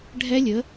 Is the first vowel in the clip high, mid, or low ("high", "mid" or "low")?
mid